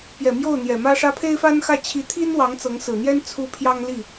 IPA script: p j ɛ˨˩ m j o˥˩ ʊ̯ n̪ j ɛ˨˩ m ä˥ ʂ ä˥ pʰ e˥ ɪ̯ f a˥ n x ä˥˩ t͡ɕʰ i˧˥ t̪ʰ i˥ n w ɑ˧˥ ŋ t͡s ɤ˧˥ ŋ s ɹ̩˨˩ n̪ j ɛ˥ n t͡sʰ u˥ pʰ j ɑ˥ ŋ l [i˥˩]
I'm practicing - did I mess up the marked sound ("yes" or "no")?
no